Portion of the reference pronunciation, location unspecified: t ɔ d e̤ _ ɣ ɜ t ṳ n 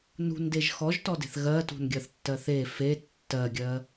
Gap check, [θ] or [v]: θ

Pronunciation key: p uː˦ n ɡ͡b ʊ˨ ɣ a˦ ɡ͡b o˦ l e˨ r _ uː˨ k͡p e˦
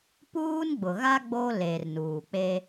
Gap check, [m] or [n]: n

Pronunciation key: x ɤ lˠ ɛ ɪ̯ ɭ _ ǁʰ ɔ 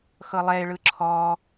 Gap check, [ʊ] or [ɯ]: ɯ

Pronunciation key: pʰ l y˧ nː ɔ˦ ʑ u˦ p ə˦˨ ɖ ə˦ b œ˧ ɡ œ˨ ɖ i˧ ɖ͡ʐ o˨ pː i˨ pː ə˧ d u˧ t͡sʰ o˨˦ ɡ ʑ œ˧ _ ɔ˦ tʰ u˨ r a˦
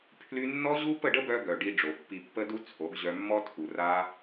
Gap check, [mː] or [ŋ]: mː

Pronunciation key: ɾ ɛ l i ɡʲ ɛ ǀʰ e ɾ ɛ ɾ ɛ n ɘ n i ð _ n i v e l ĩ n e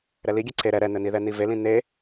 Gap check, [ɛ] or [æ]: ɛ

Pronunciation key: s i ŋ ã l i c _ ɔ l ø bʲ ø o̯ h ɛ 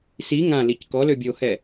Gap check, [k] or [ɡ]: k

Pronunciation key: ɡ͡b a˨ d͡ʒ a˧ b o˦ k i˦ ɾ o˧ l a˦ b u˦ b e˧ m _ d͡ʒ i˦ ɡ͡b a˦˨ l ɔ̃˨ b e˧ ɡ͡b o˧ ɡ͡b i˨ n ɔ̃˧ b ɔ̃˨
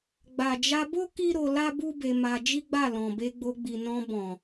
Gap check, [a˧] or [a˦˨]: a˧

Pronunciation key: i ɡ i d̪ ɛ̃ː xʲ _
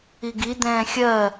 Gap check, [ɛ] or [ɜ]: ɜ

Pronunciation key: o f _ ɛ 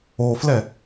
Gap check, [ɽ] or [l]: l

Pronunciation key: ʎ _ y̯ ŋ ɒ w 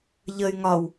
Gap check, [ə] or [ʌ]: ə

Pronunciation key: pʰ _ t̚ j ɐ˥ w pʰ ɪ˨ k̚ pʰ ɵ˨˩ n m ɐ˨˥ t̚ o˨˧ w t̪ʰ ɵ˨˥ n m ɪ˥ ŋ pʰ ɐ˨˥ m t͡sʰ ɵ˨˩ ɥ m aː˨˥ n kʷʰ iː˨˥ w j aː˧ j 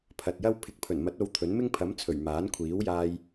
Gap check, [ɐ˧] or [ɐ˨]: ɐ˨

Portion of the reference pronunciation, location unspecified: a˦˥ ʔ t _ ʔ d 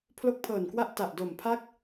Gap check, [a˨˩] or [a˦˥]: a˨˩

